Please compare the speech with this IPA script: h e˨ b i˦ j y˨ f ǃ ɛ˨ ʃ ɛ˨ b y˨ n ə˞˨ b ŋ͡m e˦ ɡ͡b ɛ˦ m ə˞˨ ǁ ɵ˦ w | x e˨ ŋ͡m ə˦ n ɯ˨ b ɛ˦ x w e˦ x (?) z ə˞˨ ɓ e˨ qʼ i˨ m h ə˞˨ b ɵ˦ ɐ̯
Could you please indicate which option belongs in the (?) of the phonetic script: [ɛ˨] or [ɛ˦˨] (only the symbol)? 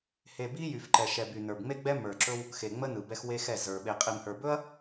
ɛ˦˨